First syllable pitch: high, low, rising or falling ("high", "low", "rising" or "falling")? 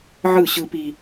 falling